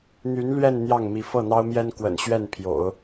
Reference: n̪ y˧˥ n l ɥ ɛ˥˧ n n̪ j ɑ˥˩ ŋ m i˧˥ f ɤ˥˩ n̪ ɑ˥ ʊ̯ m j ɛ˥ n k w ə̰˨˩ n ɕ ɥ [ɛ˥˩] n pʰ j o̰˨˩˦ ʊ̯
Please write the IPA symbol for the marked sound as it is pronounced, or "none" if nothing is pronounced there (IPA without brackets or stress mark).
ɛ˥˩